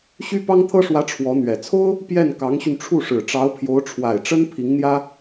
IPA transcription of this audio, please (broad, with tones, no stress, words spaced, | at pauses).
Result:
ɕy˥pɑ˥ŋt̪ʰɤ˥ʂwä˧˥ ʈ͡ʂʰwɔ˧˥n̪ɥɛ˨˩ t͡sʰo˥ʊ̯ | pjɛ˥˩n kɑ˧˥ŋɕy˧nʈ͡ʂʰu˥˩ʂɻ̩˨˩ ʈ͡ʂɑ˧˥ʊ̯pʰjo˧˥ʊ̯ʈ͡ʂʰwa˨˩ɪ̯ʈ͡ʂə˥n pʰi˧˥ŋn̪jä˥